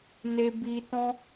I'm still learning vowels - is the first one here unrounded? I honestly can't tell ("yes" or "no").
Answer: yes